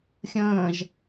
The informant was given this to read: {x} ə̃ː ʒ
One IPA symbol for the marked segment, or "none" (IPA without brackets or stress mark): xʲ